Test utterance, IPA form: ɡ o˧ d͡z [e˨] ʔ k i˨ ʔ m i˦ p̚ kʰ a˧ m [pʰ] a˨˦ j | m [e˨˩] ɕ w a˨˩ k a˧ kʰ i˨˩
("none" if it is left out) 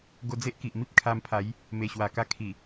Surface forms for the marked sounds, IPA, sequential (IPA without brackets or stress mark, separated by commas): e˦, pʰ, e˨˩